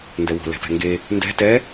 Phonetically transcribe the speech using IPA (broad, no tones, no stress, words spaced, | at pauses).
ndɛwo̤ lɛ̤pɛ̤ŋɡe | ndɛ̤ tɛ